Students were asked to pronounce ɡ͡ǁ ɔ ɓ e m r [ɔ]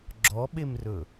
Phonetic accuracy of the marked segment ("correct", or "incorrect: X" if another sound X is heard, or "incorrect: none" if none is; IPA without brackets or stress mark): incorrect: ɵ